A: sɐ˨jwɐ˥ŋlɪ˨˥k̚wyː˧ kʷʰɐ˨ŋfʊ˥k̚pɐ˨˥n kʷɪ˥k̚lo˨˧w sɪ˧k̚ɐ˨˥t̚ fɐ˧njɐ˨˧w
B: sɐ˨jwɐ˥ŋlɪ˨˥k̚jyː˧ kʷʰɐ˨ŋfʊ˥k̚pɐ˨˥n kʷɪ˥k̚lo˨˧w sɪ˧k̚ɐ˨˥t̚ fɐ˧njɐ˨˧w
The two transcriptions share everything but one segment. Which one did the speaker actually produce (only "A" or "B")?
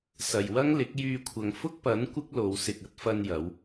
B